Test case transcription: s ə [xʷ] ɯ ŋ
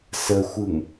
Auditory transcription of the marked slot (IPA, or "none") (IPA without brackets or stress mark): xʷ